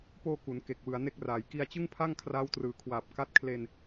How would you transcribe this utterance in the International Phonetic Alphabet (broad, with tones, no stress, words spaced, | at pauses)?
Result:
poː˧ ku˩˦n ke˨˩k̚ wɯ˩˦a̯ne˦˥k̚raː˩˦j ki˧a̯t͡ɕɯ˥˩ŋpʰa˥˩ŋ kʰraː˦˥wtrɯː˨˩kʰwaː˨˩p̚ ka˦˥t̚kʰle˧n